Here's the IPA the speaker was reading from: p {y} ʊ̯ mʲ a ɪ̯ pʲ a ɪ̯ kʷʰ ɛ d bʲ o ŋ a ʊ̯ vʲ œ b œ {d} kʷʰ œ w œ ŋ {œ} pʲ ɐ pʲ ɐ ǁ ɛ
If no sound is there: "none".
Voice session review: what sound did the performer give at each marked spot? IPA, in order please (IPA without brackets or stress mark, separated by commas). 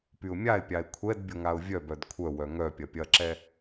y, d, œ